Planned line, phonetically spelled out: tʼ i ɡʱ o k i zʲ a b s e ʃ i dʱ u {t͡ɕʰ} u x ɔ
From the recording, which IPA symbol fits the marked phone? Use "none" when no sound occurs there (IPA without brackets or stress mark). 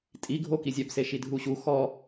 ɕ